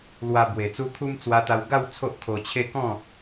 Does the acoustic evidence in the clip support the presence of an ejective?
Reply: no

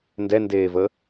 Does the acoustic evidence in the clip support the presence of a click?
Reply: no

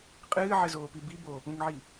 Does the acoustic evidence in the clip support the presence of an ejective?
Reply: yes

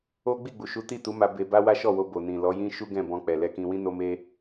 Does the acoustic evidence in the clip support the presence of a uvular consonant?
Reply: no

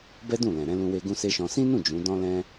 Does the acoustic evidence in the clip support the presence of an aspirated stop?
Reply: no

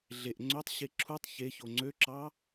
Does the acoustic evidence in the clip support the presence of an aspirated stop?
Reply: yes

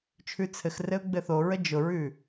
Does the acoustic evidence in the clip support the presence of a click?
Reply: no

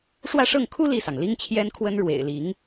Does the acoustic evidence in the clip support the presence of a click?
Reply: no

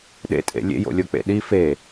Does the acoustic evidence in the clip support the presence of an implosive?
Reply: yes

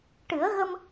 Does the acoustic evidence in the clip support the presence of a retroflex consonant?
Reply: yes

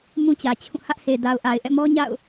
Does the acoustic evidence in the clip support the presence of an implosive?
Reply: no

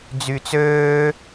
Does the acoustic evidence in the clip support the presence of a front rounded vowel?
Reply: yes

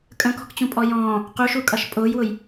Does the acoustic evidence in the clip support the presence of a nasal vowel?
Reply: yes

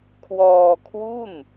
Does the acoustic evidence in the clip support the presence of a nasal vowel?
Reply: no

